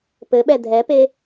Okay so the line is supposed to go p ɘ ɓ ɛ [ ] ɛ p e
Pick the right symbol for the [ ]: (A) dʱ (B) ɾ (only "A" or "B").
A